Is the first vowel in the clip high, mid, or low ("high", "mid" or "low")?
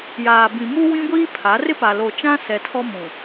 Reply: low